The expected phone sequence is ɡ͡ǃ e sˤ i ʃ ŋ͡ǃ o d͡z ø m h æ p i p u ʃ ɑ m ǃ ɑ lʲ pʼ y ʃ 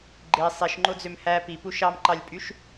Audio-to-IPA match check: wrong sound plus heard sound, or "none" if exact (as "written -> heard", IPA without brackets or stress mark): none